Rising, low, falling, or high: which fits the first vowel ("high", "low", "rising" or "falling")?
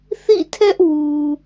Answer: falling